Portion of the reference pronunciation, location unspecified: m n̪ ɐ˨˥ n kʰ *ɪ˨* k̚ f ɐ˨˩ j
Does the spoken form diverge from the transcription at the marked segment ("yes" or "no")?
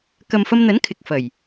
no